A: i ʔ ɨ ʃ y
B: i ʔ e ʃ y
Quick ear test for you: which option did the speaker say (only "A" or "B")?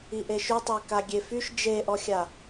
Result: B